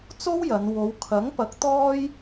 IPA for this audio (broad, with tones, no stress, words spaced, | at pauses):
t͡so˥wjɐ˨˧n wo˨˧wkʰɐ˨˥ŋpɐ˨˥k̚ t̪ɔː˥j